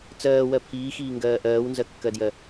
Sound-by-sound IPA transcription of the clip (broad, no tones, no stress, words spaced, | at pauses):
t͡sɜːwɜ pʰiːxiːŋɡɜː ʔɜːwnzɜkːɜdjɜ